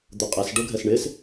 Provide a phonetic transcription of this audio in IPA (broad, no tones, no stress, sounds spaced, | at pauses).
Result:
d̪ ʊ qʼ ɛ s ɖ o ɡʱ ɛ s ɳ ɪ s